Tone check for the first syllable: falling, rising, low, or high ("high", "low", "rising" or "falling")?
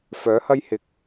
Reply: rising